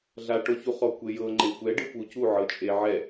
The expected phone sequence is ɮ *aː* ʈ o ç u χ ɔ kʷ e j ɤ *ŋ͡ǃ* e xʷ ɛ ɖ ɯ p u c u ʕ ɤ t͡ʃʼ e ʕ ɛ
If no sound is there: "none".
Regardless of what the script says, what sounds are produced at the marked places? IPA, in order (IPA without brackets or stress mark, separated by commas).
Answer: a, ŋ͡ǃ